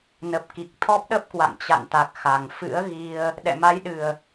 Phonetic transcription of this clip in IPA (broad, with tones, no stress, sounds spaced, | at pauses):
n ə˨˩ p̚ k i˨˩ k̚ t̪ʰ ɔ˦˥ p̚ ɗ ə˦˥ p̚ k w a̰˧˨ ŋ t͡ɕ a̰˧˨ n t̪ a˨˩ k̚ x a˨˩ ŋ f ɨ̰˧˥ ə̯ ɣ i˧ ə̯ | ɗ ɛ̰˧˨ m a˨˦ j ɗ ɨ˨˩ ə̯